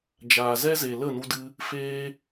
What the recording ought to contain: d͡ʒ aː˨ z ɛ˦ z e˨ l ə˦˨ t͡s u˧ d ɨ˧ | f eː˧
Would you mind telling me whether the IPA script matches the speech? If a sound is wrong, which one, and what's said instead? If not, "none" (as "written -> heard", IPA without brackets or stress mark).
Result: t͡s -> n